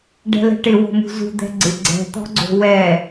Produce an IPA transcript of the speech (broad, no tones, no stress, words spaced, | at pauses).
ɖɛ̤lɛ̤ʈɪ wo̤mṳzṳ d̪ɛ̤ɡ͡ǀɪ ɡ͡ǀɛ̤ t̪ɔ̤ɡ͡ǀo̤wɛ